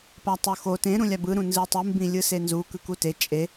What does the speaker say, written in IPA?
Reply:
p a tˤ o x o t ẽ ɾ ũ lʲ a b ɯ ɾ ũ n z ɯ tˤ ɯ m b ĩ lʲ ɯ s e n z u k ɯ k u t e t͡ʃʼ e

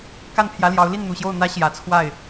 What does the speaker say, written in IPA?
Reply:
k a˥˩ n pʰ j ä˧˥ l j ɑ˧˥ ʊ̯ l i˥˩ n n̪ u˨˩ ɕ j o˥˩ ʊ̯ n̪ ä˧˥ ɕ j ä˨˩ t͡sʰ w a˥˩ ɪ̯

